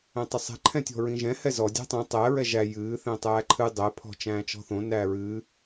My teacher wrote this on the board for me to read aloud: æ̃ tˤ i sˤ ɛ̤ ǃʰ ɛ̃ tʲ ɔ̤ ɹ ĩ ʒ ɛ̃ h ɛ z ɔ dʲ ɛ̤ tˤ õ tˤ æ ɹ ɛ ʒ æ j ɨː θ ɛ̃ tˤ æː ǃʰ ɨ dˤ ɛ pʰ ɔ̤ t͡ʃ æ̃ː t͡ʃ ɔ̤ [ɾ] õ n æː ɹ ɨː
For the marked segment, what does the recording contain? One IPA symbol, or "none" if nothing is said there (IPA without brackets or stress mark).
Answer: θ